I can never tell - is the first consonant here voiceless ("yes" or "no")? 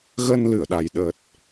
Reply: no